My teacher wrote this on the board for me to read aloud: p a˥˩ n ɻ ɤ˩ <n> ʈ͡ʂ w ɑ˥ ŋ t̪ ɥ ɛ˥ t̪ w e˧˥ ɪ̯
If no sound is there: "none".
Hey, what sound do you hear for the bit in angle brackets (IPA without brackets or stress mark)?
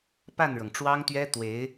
ŋ